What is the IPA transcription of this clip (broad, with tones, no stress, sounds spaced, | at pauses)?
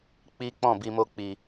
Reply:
k͡p i˦ k͡p ɔ̃˦˨ b i˨ m o˧ k͡p i˨